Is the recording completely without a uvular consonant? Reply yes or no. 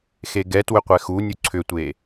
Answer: no